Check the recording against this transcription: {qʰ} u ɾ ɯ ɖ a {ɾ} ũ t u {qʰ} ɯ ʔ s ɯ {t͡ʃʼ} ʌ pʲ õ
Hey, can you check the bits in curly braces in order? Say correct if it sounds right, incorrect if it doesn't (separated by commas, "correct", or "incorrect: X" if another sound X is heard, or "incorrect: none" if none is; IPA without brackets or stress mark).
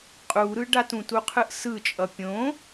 incorrect: qʼ, incorrect: t, correct, correct